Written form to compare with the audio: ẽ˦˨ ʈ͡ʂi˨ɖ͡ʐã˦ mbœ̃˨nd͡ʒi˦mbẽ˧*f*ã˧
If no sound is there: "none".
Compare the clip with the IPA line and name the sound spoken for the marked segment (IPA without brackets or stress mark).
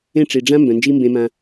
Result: m